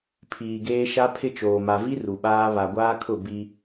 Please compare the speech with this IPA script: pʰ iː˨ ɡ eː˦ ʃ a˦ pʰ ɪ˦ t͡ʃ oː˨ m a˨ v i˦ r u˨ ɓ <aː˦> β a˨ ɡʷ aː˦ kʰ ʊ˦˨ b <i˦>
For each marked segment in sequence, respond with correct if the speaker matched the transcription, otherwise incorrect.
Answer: correct, correct

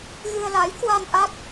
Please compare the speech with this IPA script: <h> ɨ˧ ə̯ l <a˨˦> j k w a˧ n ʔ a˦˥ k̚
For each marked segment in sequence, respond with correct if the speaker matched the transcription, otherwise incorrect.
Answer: incorrect, correct

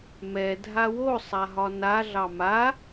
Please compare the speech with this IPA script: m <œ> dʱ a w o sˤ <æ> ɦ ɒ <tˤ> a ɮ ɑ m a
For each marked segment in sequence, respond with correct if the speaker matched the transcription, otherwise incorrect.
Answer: incorrect, incorrect, incorrect

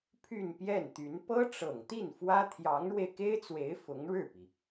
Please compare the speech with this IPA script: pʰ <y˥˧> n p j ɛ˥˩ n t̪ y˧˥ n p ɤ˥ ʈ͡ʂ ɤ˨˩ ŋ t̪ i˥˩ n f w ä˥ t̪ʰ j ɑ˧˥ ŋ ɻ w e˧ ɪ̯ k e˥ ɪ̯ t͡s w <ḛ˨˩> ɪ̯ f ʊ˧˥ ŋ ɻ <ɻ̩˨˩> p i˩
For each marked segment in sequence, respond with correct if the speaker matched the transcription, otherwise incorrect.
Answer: correct, incorrect, incorrect

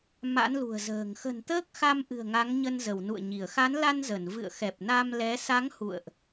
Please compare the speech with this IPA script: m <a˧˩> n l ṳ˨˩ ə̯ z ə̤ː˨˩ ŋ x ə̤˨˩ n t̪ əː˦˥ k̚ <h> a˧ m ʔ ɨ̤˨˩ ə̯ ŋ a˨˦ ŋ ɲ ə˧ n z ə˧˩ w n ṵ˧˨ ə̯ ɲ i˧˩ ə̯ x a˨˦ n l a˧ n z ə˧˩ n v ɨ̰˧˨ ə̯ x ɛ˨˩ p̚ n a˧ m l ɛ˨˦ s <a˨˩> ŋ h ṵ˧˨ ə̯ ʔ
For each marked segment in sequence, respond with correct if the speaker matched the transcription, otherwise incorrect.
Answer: incorrect, incorrect, incorrect

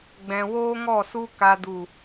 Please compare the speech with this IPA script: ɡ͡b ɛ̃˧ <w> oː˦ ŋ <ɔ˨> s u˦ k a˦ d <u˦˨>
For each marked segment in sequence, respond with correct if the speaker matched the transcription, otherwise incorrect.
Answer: correct, incorrect, correct

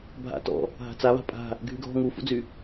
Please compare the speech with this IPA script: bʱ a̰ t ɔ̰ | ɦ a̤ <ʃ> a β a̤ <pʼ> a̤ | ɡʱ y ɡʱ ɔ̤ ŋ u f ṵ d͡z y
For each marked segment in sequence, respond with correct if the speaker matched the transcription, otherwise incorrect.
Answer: incorrect, correct

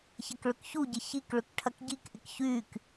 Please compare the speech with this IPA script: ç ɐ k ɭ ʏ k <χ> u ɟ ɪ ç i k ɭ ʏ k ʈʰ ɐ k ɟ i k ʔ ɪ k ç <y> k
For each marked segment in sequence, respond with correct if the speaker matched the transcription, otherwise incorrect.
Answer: incorrect, correct

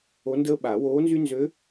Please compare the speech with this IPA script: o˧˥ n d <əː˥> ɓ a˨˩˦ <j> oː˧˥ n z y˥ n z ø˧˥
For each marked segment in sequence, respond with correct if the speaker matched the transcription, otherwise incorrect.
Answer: correct, incorrect

